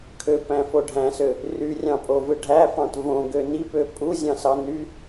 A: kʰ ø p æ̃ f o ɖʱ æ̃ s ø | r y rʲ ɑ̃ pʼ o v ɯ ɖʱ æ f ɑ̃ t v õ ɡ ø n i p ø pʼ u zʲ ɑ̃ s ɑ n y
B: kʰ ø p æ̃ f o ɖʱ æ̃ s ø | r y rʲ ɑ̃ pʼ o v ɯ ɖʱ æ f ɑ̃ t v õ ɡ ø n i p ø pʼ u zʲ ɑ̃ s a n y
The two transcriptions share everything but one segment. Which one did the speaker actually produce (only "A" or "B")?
A